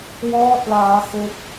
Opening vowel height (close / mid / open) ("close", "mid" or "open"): mid